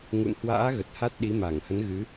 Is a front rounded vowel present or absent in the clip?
absent